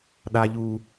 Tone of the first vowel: low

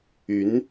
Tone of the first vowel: rising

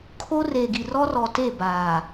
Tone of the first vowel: high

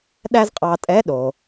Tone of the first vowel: high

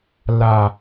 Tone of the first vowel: low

